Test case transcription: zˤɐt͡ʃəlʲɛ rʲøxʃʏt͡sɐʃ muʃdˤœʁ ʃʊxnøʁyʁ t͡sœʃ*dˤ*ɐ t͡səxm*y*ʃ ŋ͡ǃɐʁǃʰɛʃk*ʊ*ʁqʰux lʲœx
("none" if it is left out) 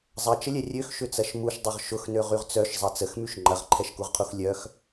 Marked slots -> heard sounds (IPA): zˤ, y, u

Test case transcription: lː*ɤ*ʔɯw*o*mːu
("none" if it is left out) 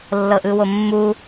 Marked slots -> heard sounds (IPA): ɤ, o

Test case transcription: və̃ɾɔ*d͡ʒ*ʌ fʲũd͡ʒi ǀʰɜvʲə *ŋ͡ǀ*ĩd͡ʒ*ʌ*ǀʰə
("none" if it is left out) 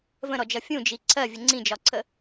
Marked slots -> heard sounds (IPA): d͡ʒ, ŋ͡ǀ, ɒ

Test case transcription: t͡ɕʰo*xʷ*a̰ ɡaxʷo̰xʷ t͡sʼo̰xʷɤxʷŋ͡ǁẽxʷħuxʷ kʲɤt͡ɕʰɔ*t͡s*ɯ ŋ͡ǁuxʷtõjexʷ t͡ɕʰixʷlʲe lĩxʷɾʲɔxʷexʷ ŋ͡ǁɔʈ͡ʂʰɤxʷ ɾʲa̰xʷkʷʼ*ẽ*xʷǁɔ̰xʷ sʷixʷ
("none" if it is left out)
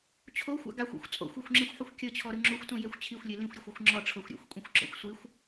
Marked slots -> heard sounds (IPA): xʷ, ɾ, ĩ

